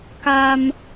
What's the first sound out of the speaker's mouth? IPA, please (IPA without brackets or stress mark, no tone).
k